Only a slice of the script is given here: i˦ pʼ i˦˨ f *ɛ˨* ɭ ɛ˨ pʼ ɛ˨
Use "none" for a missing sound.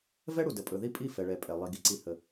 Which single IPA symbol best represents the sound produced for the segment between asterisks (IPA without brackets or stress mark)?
ɛ˨